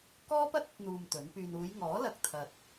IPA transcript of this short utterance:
k ɔː˥ p ɐ˥ t̚ ɐ˥ t̚ n̪ uː˧ m t̪ ɵ˨˥ n p yː˧ n uː˨˧ j ŋ ɔː˨˥ l ɐ˧ k̚ t̪ʰ ɐ˨ t̚

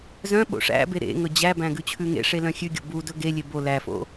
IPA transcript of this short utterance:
z œ̃ ɓ o̰ ʂ æ̰ b e ɾ ḛ ŋ ɵ d͡ʑ æ b æ̃ ɡ ʉ t͡ɕʰ ʉ ŋ ḛ ʂ e l œ̃ xʲ ʉ ɡʲ o̰ b u d ɵ ɡ e lʲ e b o l æ f o̰

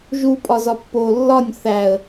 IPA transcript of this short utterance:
ʒ u pʼ ɒ z ɒ pː o lː ɒ nʲ θ æ ə̯

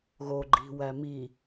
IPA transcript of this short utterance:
ɣ o ɡ͡ǃ i̤ w æ m i

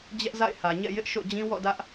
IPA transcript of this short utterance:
d͡ʑ ɛ˦ ʔ z a̰˦˨ ɪ̯ h ä˨ ɲ ɛ̰˦˨ j ɪ˦ ʔ ʃ o̰˦˨ d͡ʑ ĩ˦ w ɔ̰˦˨ d ä˦ ʔ

